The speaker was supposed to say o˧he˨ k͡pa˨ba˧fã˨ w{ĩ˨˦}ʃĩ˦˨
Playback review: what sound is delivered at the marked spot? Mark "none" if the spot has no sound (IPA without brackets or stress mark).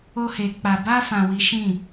i˨˦